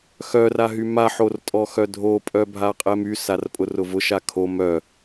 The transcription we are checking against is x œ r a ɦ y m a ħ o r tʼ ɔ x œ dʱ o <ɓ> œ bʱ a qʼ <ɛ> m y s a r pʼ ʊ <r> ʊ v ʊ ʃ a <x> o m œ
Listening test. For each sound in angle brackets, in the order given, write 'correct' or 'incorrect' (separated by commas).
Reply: incorrect, correct, correct, incorrect